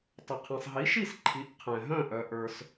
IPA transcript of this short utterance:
tˤə˩qʰĩ˩sˤɦi˩˥ʃi˥˩s ǃʰi˩˥ʔqʰɛ̃˩ɦœ̃˥˩ ʔœ˩ ʔə˞˩s

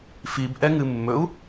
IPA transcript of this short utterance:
fib ʔɛŋɨmːɵu̯

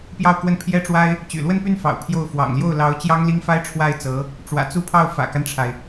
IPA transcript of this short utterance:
pjɑ˥˧ʊ̯kwə˥˩n pʰjɛ˥ʈ͡ʂwa˥ɪ̯ | t͡ɕy̰˨˩lwə˥˧npy˥˩nfɑ̰˨˩ʊ̯ pʰjo˥˩ʊ̯ fwɑ̰˨˩ŋljo˥˩ʊ̯ lɑ˧˥ʊ̯ t͡ɕjɑ˥ŋli˥ŋfa˥ɪ̯ ʈ͡ʂʰwa˥˩ɪ̯t͡sɤ˧˥ | ʈ͡ʂwä̰˨˩t͡su˥˧pʰɑ˥˩ʊ̯ fä̰˨˩ka˦nʈ͡ʂʰa˩ɪ̯

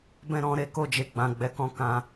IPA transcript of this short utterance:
bɛ̃˦ɾɔ̃˧ɾe˦ ko˦˨d͡ʒe˧ ɡ͡bã˨ ɡ͡bɛ˨kɔ̃˧ kã˧

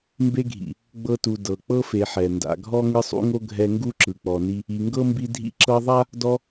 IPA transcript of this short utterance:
mbe˦ɡʱḭ˩ | ɡ͡bɤ˦tu˨ dɤ˩ k͡pɤ˥fe˨ħɛ˩ nda̰˨ɡʱɔ˥ ŋɯ˦sˤṵ˥ŋo˥ ɡʱɛ˦ŋɡu˥ ǁɯ˨k͡pɔ˨ni˦ | i˨ŋɡɤ˥mbi˦ dʱḭ˦ǁɤ˦ðˤa˥ | dɔ˦

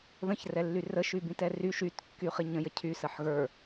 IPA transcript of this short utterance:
ðə̃ç rɛlːyrə ʃybĩtɛry ʃyt kːyχiɲə̃ jəcʰy səħɣə˞

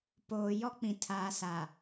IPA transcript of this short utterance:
poː˨ jɔ˦k͡pĩ˨ tʰaː˨sa˨

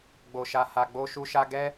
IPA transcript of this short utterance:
ɡ͡bo˧ʃa˧ha˧ ɡ͡bo˦ʃu˦ʃa˦ ɡɛ˦

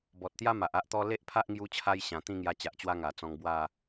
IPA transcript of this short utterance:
bɔ˨t̚t̪ja˦ ma˨ʔa˦ʔt̪ɔ˦ le˦ʔpʰa˦ʔŋju˧t͡ɕʰa˧j ɕã˨˩t̪ĩ˥˧ŋja˧ t͡ɕa˨ʔt͡ɕwa˦ ŋa˨˩t͡sɔ̃˧ŋ bwa˥˧

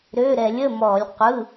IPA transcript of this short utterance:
ɾø˩˧˩ɾɛ˧˩˧lʲ ə˩˧˩mɔ˧˩˧lʲ qʷɯ˩˧˩

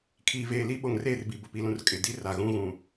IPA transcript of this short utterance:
kʰiː˨veː˨li˦ ɓo˨ŋreː˦˨rbi˨ bʊ˨pi˨lũ˨r kʼɪ˨ di˦ra˨ ɣũ˦ɣũ˨

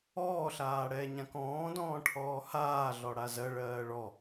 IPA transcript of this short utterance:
ɔːɬaː ɽɛːɲãkɔ̃ːdɔ̃ː ʈʰɔːhaːɮɔ ɽazɜɭɜː ɭɔ

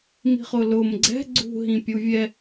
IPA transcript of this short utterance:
mi̤χʊːlʊːm ɡ͡ǀɛ̤ ɡ͡ǀṳ ɦĩpʲuvʲɛ

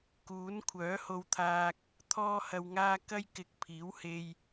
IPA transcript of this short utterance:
kuː˨˥n kʷʰœː˨˥ ho˧wt̪ʰaː˧k̚ | t̪ʰɔː˧hɐ˨wŋaː˧ kɐ˥j kɪ˨k̚ pʰiː˨˥whe˧j

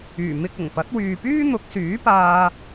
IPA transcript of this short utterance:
yː˨˩mɪ˧k̚ ʊ˨˩ŋ pɐ˨˥t̚wyː˨pyː˥n̪ʊ˨˥k̚ syː˨˥paː˧

